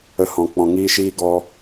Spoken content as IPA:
ə˧ h ɔ̃˨ k͡p ɔ̃˨ ŋ iː˧ ʃ iː˧ ɡ ɔ˧

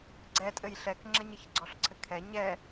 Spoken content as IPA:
ɡ͡ǀ ɛ tʼ ɘ j ɬ ɛ k ŋ͡ǁ ɐ ɲ ɘ ç ɡ͡ǀ ɔ ɬ ǀʰ ɘ kʰ ɛ ɲ ɛ

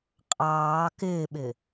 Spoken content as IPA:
qʼ ɑː k ɪː ɓ ɪ

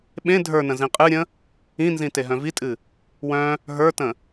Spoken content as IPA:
ɓ ẽ dʱ ə˞ n ə̃ z ĩ qʼ ɨ ɾʲ ə̃ | ĩ n z ĩ t e ɦ œ̃ v i tʼ ɨ | w œ̃ | ɦ ə˞ t ə̃

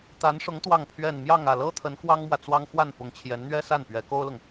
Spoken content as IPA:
t̪ a˧˥ n ʂ ʊ˧˥ ŋ t̪ w ɑ˥˧ ŋ pʰ ɥ ɛ˥˧ n m j ɑ˥˧ ŋ ä˥˩ l ɤ˥ t̪ʰ ə˧˥ n k w ɑ˥ ŋ m w ä˨ t͡s w ɑ˥ ŋ x w a˥˩ n p ʊ˧˥ ŋ t͡ɕʰ j ɛ˧˥ n n̪ ɥ ɛ˥ s a˥˩ n p ɥ ɛ˧˥ k o˥ ʊ̯ l ʊ˨ ŋ

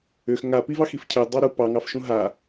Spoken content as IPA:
ʏ x ŋ a p i v ɑ x i f cʰ ɘ dˤ ɑ ɾ u p ɑ ŋ ɑ f ʃ ũ ɦ a

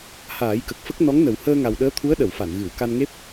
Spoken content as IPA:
h aː˨˩˦ j k ə˨˩ k̚ f ə˦˥ k̚ n ɔ˧˥ ŋ n ə˨˩ w h əː˧ ŋ a˨˩ w ɗ əː˧˥ t̪ʰ u˧˥ ə̯ ɗ ə˨˩˨ w f a˨˩˨ n ɣ ɨ˨˩˨ w k a˧ n ŋ e˦˥ p̚

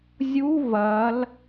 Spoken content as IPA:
zʲ u v ɐ l

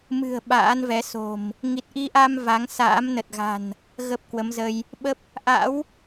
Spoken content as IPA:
m ɨ̤˨˩ ə̯ ɓ a̰ː˧˥ n v ɛ˨˦ s o̤˨˩ m | ŋ i˨˩ t̚ ʔ i˧ ʔ a˧ m v a˨˦ ŋ s a̰ː˧˥ m n ə˨˩ t̚ ɣ a̤˨˩ n | ɣ ə˦˥ p̚ k w ə˨˦ m z ə˧ j | ɓ ə˦˥ p̚ | ʔ a̰˧˥ w

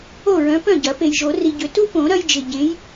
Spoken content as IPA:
o˥˩ ɹ œ̃˨˦ p œ̃˥˩ ɟ ɐ˨˩˦ p e˨ j ʒ o˨˩˦ r i˨ ɟ ʏ˨˩˦ t u˦ p õ˨˩˦ ɾ ɐ˦ j d͡ʒ ɪ˨ ɟ ẽ˨˦ j

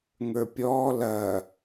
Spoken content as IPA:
ŋ ə˞ pʲ ɔː l ɐː

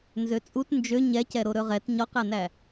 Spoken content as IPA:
n z ø t͡sʼ u t n d͡ʒ ø ɲ ɛ c ɛ ɾ o ɾ ɵ ʁ ɛ t ɲ ɔ q æ n æ

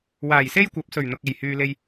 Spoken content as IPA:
w aː˨˩ j s e˥ j kʷ ɐ˨˥ p̚ s ɵ˨˩ ɥ n̪ ʊ˨ k̚ e˨˩ j h yː˨ l e˧ j

